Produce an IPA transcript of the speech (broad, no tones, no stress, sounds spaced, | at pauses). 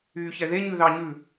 yː ç ɛ ð e ɲ ʉ ð ɑ ɲ ʉ